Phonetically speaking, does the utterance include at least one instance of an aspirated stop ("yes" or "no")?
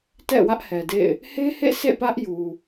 no